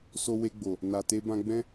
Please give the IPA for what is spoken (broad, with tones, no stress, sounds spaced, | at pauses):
s o˧ w e˧ ɡ͡b o˨ | n a˨ t e˧ b ã˧ ɡ͡b ɛ̃˦